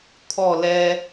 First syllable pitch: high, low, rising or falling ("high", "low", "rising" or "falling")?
falling